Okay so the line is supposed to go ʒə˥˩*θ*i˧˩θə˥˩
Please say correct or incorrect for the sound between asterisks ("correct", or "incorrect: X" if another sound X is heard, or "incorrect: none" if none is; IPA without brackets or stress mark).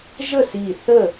incorrect: s